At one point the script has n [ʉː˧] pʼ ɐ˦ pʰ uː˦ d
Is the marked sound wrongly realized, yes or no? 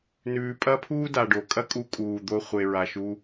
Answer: yes